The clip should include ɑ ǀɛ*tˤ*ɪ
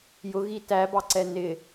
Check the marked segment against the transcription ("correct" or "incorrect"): incorrect